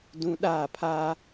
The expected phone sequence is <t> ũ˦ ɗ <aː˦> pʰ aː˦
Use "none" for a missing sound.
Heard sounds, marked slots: d, aː˦˨

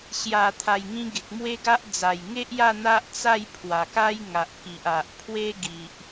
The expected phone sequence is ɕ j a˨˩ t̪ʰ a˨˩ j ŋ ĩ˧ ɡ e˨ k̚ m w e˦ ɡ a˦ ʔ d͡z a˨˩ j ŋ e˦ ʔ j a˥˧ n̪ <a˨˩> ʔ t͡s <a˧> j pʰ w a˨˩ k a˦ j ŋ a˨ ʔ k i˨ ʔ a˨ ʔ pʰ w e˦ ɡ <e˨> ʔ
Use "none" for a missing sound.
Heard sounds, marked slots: a˦, a˥˧, i˨

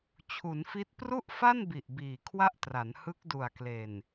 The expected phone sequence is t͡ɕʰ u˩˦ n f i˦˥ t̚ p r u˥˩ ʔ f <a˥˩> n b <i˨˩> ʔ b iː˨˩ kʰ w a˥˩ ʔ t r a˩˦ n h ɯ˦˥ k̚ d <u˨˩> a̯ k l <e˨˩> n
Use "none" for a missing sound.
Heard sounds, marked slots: a˥˩, i˨˩, u˨˩, e˨˩

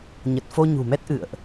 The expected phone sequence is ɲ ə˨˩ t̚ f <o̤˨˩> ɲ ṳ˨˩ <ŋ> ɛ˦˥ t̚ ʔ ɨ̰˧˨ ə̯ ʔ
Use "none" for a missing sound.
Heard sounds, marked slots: o˧, m

